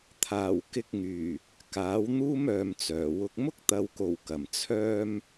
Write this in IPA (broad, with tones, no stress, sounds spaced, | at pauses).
t̪ʰ aː˨˩ w k ɪ˧ k̚ ŋ yː˨˩ | k aː˨˥ w n̪ uː˥ m œː˧ m t͡s œː˨˩ w ʊ˥ k̚ m ʊ˥ k̚ t̪ ɐ˨ w k o˨˩ w k ɐ˨˩ m t͡sʰ œː˥ m